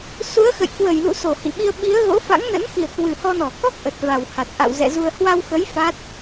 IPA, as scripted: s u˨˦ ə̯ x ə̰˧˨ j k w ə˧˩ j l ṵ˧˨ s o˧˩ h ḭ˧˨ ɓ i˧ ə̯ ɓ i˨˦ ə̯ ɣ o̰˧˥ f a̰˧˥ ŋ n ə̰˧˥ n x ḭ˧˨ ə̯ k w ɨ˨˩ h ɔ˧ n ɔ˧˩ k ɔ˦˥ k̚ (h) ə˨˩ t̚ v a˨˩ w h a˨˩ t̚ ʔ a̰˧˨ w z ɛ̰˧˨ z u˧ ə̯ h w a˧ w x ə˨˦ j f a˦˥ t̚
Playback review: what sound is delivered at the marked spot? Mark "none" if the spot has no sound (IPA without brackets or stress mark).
ʔ